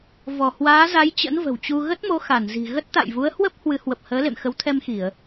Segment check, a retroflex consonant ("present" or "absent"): absent